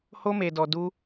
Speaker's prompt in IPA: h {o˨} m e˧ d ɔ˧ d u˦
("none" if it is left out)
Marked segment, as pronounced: o˦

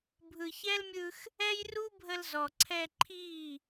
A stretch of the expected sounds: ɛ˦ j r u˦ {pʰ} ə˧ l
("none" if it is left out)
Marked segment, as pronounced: bʱ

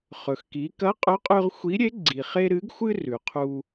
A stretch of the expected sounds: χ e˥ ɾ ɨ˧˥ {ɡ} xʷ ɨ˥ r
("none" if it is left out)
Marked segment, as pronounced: ɡ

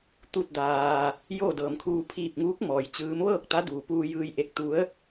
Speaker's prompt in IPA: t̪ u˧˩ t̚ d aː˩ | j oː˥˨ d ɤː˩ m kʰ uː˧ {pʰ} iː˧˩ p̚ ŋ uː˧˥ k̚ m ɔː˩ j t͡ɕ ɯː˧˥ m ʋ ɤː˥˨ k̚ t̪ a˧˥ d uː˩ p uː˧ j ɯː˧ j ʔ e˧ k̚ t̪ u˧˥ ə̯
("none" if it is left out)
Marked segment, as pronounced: pʰ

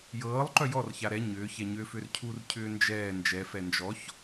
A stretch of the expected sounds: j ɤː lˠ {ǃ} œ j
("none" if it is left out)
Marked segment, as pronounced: ǃ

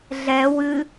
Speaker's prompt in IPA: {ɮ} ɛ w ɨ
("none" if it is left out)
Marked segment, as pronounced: ɮ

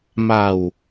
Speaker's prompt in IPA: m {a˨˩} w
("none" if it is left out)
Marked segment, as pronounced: a˨˩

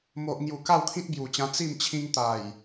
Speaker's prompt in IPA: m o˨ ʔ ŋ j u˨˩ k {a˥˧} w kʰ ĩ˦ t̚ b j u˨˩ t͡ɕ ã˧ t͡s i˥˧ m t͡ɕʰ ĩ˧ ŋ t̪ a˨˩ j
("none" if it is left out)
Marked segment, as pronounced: a˥˧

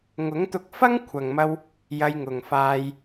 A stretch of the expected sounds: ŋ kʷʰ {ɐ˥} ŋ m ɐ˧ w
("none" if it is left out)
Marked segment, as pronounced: ɐ˨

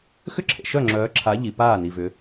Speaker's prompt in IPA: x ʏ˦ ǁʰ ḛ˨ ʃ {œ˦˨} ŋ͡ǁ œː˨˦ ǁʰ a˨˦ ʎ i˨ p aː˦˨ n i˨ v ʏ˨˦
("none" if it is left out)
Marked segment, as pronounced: œ˦˨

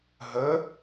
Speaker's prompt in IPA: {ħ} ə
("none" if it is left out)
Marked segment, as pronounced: ɦ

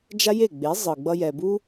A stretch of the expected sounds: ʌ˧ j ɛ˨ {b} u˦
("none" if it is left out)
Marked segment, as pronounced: b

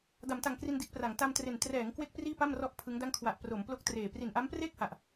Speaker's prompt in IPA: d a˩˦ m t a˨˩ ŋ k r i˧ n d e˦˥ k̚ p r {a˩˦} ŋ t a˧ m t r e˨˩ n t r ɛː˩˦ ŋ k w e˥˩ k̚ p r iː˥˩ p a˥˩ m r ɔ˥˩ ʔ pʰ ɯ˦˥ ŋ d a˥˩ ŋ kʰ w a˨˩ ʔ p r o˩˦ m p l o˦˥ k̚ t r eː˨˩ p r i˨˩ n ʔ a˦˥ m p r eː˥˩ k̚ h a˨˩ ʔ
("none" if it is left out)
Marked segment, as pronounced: a˩˦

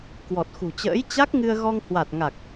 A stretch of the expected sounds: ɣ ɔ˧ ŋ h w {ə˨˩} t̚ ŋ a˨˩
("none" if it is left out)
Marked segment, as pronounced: a˨˩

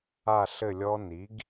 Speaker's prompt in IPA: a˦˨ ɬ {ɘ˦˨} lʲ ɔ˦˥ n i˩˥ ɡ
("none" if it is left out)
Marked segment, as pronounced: ɘ˦˨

